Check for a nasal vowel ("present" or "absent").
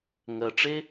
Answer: absent